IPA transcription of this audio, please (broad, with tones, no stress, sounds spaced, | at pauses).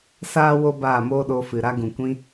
s aː˦ w o˦ b aː˦˨ m oː˦ ɗ o˧ f ɨ˨ ɾ a˧ ɡ ũ˨ kʷ ĩ˧